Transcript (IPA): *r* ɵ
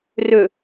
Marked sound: correct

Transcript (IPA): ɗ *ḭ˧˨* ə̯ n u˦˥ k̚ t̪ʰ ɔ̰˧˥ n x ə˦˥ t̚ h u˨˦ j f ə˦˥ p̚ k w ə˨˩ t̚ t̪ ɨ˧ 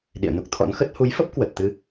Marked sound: correct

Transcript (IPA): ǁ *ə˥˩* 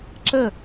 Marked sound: correct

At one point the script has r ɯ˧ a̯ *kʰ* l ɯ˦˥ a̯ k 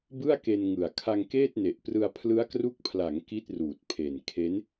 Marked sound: incorrect: pʰ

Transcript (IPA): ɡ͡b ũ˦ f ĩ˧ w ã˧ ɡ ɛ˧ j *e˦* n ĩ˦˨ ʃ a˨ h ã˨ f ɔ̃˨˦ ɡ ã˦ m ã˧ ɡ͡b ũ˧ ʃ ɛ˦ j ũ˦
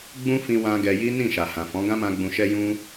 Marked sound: incorrect: i˦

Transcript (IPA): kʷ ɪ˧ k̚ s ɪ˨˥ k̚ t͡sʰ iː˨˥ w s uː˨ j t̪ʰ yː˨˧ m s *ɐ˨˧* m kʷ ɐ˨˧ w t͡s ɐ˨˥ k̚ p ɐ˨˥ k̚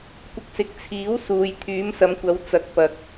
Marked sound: correct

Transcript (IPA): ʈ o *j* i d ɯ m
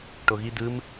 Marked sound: incorrect: ɣ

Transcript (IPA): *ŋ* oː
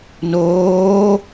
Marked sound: incorrect: n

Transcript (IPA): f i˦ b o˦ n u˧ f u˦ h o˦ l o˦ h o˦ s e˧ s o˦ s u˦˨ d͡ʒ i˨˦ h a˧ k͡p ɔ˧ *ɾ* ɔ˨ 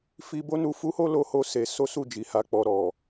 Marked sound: correct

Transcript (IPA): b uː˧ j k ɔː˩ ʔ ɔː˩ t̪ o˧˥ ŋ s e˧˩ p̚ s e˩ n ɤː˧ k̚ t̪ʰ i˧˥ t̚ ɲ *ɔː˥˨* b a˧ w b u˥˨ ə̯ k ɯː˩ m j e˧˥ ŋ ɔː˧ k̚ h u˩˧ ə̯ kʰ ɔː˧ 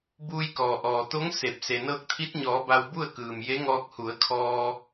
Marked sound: incorrect: ɔː˩˧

